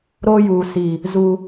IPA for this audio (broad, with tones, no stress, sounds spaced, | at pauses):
ɾ oː˦ j uː˨ s i˨ | z u˨